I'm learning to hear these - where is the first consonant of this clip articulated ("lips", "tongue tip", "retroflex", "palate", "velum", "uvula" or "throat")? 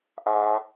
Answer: throat